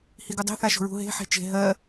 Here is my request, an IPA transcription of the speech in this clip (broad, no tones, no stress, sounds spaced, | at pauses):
h i ɡ u dˤ e̤ θ a ʃ o̤ ɹ ṳ ɦ e̤ ħ e̤ t͡ʃ e̤ ɦ ɜ